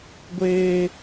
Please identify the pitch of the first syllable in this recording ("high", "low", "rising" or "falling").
high